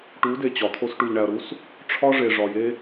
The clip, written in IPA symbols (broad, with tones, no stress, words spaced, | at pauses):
ʈu˨˦ de˨t͡ɕɒ˨t̪ʰo˦s ʈu˨ʎɳæ˨ɐ̯ɾu˦s | ʈ͡ʂʰɒ˦ʐe˨ ʐɒ˨je˦